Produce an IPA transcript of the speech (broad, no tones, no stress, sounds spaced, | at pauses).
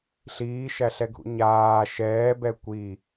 ɬ iː ʃ æ ɬ ɛ ɡʱ ṵ ɲ aː ʃ ɛː b ɛ kʷ i